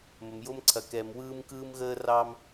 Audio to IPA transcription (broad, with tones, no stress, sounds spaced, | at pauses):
m ə˨ m j o˦ m ǀʰ ɐ˨ k ɛ˨ m w ɯː˦ m k ɯː˦ m ɣ əː˦ r ɑ˦ m